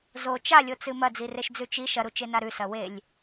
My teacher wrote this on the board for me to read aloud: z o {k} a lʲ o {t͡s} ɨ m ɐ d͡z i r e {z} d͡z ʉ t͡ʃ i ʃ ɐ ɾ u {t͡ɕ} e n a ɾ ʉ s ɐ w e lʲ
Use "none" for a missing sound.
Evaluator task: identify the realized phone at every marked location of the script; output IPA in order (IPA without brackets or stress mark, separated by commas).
t͡ʃ, t͡s, ʃ, t͡ʃ